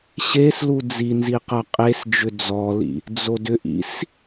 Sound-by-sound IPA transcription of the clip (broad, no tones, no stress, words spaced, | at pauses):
ɕeslu d͡zinzi qɐqʼesd͡ʒʏ d͡zɔlḭ | d͡zodʏʔḭs